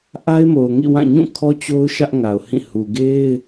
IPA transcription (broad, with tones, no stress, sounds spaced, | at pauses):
ʔ a˦ ɪ̯ m o˨ ʊ̯ ŋ ḭ˦˨ w ã˦˨ ɲ ũ˦˨ kʰ ɔ˦ t͡ɕ o˦ ʊ̯ ʃ ä˦ ʔ ŋ a˨ ʊ̯ h ĩ˦˨ h u˨ ɡ e˦ ɪ̯